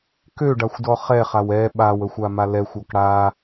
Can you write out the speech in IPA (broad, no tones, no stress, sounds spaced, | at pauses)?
k ø ɖ a xʷ d ɔ χ ɛ χ a w ɛ ɓ a w ə xʷ a m a l ɛ xʷ ɔ k ɽ a